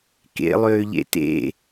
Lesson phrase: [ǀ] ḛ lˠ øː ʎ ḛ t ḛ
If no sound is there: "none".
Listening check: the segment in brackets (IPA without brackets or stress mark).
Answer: k